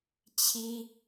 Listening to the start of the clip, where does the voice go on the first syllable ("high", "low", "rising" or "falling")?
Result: high